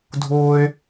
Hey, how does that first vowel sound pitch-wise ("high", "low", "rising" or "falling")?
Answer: high